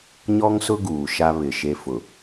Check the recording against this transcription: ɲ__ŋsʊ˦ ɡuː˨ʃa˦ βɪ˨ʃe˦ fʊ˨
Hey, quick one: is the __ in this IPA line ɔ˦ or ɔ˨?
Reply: ɔ˦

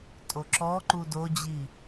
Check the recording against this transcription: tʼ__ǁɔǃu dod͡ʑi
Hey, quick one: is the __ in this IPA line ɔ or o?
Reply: o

